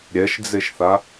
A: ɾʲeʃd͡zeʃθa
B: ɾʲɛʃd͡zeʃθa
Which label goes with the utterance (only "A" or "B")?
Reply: B